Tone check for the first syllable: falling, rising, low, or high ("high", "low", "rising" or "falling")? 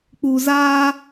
low